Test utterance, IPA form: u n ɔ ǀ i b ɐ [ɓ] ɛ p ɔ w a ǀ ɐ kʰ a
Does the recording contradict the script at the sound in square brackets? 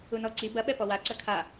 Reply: no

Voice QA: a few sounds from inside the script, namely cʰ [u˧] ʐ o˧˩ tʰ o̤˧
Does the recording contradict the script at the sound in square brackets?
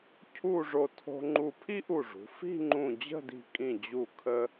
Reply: yes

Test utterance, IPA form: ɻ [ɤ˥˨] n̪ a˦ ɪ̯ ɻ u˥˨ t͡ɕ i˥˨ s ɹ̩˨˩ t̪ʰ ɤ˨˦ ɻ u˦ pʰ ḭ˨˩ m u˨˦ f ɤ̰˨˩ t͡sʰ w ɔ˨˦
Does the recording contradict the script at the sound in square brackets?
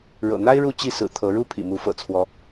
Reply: yes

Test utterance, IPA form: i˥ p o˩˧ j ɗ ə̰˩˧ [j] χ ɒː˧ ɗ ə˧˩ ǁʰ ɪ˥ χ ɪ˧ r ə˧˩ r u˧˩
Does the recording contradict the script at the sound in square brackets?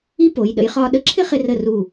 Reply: no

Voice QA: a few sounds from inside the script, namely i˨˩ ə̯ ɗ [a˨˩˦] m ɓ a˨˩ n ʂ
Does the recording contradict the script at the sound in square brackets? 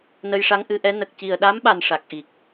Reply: yes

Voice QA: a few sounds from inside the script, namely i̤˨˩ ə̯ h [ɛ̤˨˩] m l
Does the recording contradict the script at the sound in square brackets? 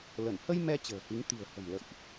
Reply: yes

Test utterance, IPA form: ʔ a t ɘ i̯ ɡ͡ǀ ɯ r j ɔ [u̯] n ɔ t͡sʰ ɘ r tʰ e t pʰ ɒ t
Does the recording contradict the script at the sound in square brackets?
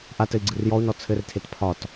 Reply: no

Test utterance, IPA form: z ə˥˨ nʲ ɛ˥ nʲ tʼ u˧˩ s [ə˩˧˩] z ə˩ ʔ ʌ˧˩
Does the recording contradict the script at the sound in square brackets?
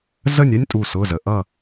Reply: yes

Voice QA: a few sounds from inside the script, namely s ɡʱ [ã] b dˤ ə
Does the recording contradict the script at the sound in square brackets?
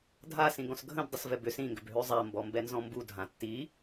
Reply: yes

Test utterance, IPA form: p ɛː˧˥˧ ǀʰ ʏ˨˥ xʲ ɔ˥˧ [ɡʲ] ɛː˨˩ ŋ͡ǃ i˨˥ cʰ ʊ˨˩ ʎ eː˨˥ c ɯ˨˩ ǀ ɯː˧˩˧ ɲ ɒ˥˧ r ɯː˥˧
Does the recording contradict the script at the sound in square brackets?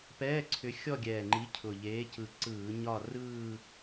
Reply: no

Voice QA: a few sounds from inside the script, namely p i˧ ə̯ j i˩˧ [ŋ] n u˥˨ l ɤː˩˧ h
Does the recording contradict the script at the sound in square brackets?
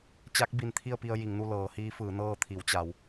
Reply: no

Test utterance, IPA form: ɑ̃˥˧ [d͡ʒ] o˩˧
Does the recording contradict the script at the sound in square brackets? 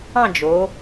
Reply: no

